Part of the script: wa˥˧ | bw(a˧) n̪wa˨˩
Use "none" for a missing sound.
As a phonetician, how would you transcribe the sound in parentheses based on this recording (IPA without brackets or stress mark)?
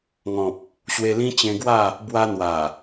a˧